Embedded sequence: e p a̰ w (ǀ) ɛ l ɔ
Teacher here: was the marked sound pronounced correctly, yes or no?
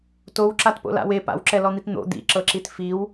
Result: no